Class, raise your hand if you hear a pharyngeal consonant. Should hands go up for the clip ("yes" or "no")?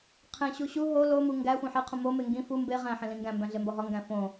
yes